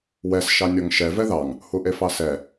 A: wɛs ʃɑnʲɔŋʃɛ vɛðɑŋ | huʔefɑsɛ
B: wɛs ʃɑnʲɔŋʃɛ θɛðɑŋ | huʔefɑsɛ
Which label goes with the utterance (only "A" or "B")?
A